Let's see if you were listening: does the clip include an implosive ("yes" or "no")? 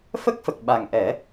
yes